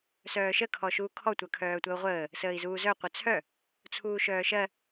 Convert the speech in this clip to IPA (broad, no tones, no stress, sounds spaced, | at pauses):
s œː ʃ ə kʰ ɔ ʃ uː kʰ ɔ tʷ œ kʰ œː tʷ ɜ u̯ ʁʷ əː | s əː i̯ z uː z œ qʷ œ t͡sʰ œ | t͡sʰ uː ʃ œː ʃ ɜ